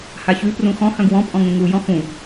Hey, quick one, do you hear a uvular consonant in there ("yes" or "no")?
no